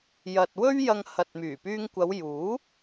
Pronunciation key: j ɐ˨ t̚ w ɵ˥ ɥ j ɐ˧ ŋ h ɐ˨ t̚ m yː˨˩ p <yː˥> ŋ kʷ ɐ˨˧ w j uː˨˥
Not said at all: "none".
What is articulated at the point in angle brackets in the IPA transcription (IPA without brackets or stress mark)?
yː˧